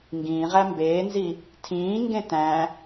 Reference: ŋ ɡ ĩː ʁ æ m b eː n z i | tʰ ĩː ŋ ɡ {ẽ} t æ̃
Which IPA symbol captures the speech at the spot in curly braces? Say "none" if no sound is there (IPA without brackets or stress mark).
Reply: ẽ